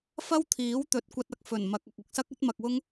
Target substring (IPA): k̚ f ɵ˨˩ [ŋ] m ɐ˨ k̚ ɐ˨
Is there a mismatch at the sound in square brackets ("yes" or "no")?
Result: yes